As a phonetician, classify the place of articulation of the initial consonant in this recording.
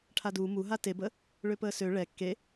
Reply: retroflex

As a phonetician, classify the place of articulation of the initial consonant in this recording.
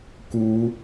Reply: velar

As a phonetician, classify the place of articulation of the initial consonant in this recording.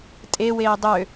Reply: alveolar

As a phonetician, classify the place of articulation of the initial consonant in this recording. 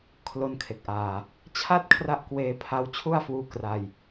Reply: velar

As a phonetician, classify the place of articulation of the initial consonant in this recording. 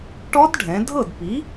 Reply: retroflex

